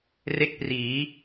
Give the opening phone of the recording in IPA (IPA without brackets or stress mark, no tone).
r